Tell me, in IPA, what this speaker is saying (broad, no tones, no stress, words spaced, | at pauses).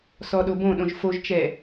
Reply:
sɔɗobõɗõʒ foʒt͡ʃɛ